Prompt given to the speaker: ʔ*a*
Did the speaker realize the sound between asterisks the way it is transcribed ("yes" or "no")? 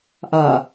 yes